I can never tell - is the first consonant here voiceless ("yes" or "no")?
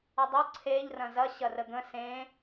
no